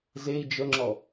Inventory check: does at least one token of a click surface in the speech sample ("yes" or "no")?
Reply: yes